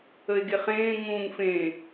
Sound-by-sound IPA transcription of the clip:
ə e̯ ɡ e χ ẽː ŋ ũː ŋ f ẽ

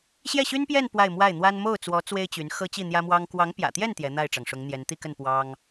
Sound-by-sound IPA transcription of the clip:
ɕ j ɛ˥˩ ɕ y˥ n p j ɛ˥˧ n p w a˥˧ ɪ̯ m w a˥˩ ɪ̯ n̪ w a˥ n m o˥˩ ʊ̯ t͡s w ɔ˧˥ t͡s w e˥ ɪ̯ t͡ɕ y˧˥ n x ɤ˥ t͡ɕ i˥˩ n̪ j ä˥ m w ɑ˥ ŋ k w ɑ˧˥ ŋ p j ä̰˨˩ t̪ j ɛ˥˩ n t̪ j ɛ˧˥ n̪ a˥˩ ɪ̯ ʈ͡ʂ ɑ˩ ŋ ʂ ʊ˧˥ ŋ n̪ j ɛ˧˥ n t̪ i˥˧ k ə˥˩ n p w ɑ˥ ŋ

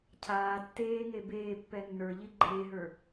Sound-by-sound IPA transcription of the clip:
cʰ aː tː eː ŋ e b eː pː ɛ nː ə˞ ʎ i ɡ͡ǃ eː ɦ ə˞

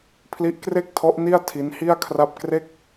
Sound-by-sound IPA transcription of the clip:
pʰ l i˦˥ ʔ k r e˥˩ k̚ tʰ ɔ˦˥ ʔ n i˥˩ a̯ tʰ i˦˥ n h i˥˩ a̯ kʰ r a˥˩ p̚ k r e˥˩ k̚

